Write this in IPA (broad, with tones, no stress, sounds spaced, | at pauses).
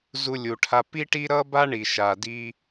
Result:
z u˧ lʲ u˩ ʈʰ a˧ p i˥ ʈ i˥ ɾ ʌ˥ b a˥ ɳ i˩ ʃ a˩ d i˧